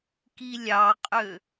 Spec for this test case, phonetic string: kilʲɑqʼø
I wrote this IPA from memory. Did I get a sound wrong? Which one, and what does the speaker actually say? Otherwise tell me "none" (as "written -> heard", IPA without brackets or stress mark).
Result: none